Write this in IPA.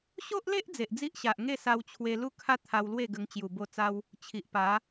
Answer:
ɕ o˦ ʔ l e˦ ʔ d͡z e˨ ʔ d͡z i˦ ʔ ɕ a˨ ʔ ŋ e˥˧ s a˧ w t͡ɕʰ w e˧ l u˥˧ kʰ a˦ t̪ʰ a˧ w l w e˥˧ ɡ ə˧ ŋ t͡ɕ j u˨˩ b o˧ t͡s a˧ w | t͡ɕʰ i˨ ʔ p a˨˦

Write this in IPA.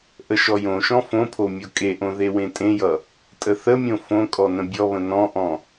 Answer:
ʔ ə ʃ ɔ j õ ʃ ɔ̃ f õ pʰ o mʲ o kʼ e ʔ õ ð e w ẽ tʼ ẽ j ʌ | tʼ ə θ ə mʲ õ f õ kʼ ɔ n ə̃ bʲ ɔ β ə̃ n ɔ̃ ʔ ɔ̃

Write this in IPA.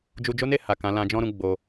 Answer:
d͡ʒ u˧ d͡ʒ o˦ n e˦˨ h a˨ k ã˨˦ l ã˧ d͡ʒ ɔ̃˦ ɾ ũ˧ ɡ͡b o˧

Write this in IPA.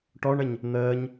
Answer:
ʈ ɔ ɳ ə ɲ | n̪ əː ɲ

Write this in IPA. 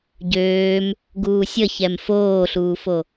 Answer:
ɟ øː m | ɡ uː sʲ ə ç ɛ m f oː ɬ uː f o

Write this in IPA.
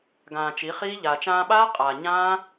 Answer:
ɡ ãː˨ t͡ʃ i˨˦ χ iː˦ ʎ aː˨ t͡ʃ ãː˧ ɓ aː˦ qʼ aː˨ ɲ ãː˦

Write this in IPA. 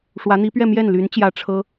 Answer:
ʂ w ä˧˥ n̪ i˧˥ p ɥ ɛ˥˧ m j ɛ˥˩ n l y˧˥ n t͡ɕ j ä˧˥ ʈ͡ʂʰ ɤ˥

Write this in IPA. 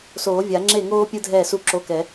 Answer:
s oː˨˩˦ vʲ a˨˩˦ ŋ͡ǁ e˥˩ ŋ oː˥ pʲ ɯ˥ dʱ ɛː˥˩ s u˥˩ ǁ o˧˥˧ k ɛ˨˩˦

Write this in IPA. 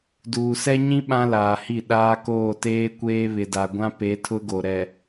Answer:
d uː˨ s ɛ˦ ɲ ĩ˦ ɓ ã˦ l aː˨ h i˦˨ ɗ aː˦ k oː˦˨ t eː˦ kʷ eː˦ β ɪ˨ d a˨ ɡʷ ã˦ p e˨˦ tʰ ʊ˦ ɡ o˨ ɾ ɛ˨

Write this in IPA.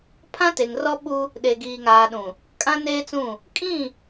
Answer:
pʰ ã˦ t e˨ ŋ r ɔ˦ ɓ u˦ | ɗ e˨ ɡ iː˨ ŋ aː˨ ɗ ũ˨ | kʼ ã˦ n eː˦ t͡s ũ˦˨ | kʼ ĩ˦˨

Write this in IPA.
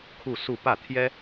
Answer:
kʰ u˥˧ s u˥˧ p ä˥˩ t̪ʰ j ɛ˥

